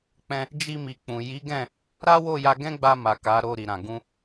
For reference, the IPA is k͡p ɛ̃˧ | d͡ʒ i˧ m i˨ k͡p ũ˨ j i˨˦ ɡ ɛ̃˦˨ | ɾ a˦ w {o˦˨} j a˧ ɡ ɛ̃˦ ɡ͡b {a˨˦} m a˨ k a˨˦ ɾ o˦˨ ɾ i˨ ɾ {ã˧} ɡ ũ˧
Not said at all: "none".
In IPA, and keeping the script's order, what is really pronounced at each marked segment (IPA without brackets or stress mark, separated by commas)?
o˦˨, a˧, ã˨